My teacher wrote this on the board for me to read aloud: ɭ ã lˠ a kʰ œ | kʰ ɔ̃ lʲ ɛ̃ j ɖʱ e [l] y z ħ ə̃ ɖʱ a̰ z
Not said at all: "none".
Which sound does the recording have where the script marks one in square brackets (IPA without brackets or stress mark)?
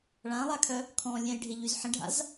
ʎ